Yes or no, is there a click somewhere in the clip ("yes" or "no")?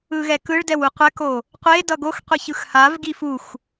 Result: no